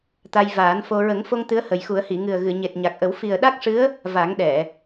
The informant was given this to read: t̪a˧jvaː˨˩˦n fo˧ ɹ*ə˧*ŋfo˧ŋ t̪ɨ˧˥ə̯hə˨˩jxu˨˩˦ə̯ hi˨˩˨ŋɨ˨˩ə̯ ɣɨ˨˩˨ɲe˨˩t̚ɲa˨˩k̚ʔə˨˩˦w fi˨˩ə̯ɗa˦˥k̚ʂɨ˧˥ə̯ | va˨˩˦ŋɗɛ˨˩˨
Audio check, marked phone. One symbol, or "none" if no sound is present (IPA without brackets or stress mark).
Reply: ə˨˩˦